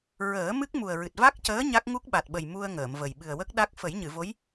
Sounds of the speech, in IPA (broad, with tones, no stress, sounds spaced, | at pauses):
ɹ əː˨˩˦ m ɨ˦˥ k̚ m u˨˩ ə̯ ɹ ɨ˨˩ t̚ v a˦˥ k̚ c əː˧˥ ɲ a˦˥ k̚ ŋ u˦˥ k̚ ɓ a˨˩ t̚ ɓ ə˨˩ j m u˧ ə̯ ŋ əː˨˩˨ m v ə˨˩ j ɓ ɨ˨˩ ə̯ w ə˦˥ k̚ ɗ a˦˥ k̚ f ə˨˩˦ j ɲ ɨ˨˩˨ v o˧˥ j